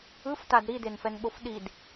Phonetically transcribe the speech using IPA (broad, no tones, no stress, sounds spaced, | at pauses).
ɯ f t a d ɾ i d e n f ɛ n ɓ o f ɗ i d